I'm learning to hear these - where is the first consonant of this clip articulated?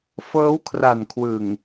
lips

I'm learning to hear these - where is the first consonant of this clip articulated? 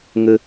velum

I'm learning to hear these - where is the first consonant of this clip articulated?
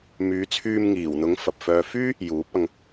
lips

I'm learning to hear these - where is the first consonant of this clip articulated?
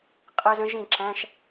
uvula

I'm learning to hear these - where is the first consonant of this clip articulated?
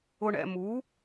retroflex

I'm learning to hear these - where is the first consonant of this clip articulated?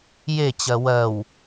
palate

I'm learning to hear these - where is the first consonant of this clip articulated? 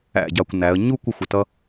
palate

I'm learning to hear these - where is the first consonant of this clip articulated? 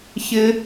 palate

